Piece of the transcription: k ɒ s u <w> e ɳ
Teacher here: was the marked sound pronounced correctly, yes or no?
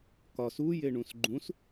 no